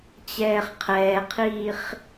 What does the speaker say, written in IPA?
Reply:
t͡ɕɛːχqʰɛːqʰiːχ

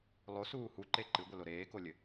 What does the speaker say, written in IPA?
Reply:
lˠosuː huǃe ǃɨɡʷɘlo ɾeːkolʲɘ

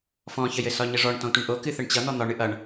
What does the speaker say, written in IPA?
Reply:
fɔ̃çəjɘsɒ ɲəʐɔɳ tɔ̃tʷɨɳʔo kɨθəɳt͡ɕʌ n̪ɔn̪ɒɳɨ ʔʌɳ

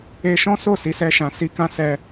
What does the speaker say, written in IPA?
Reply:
e˧ʃɔ̃˦so˦˨ si˨˦sɛ˧ʃã˨ si˧kã˦ sɛ˧

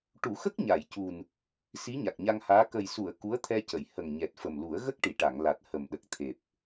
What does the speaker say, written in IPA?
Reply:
ʈu˨˩˦xə˦˥k̚ ɲa˨˩˨jcu˨˩n | si˧˥ɲa˨˩k̚ɲa˧ŋhaː˧˥ kə˨˩jsu˨˩˨ə̯ ku˧˥ə̯t̪ʰɛ˧cə˨˩˨j hə˨˩ŋɲɛ˨˩t̚fə˨˩mlu˨˩˦ə̯ ɣə˦˥k̚ʈi˨˩˨ʈa˨˩˨ŋla˨˩t̚ hə˨˩mɗə˨˩k̚t̪ʰe˨˩p̚

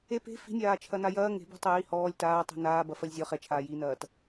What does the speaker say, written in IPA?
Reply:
e pe̤ fi̤nʲaːt͡ʃʰɐna jɐː ŋe̤bṳtˤɛji hɔːlʲ taːtˤi̤ naːbɐfɐlʲ zʲɔ χɛt͡ʃʰaː jinɐːt

